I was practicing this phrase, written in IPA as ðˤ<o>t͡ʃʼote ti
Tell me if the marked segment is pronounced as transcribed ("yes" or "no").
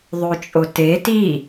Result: yes